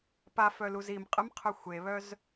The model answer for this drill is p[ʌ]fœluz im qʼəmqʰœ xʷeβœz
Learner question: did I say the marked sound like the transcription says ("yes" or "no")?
no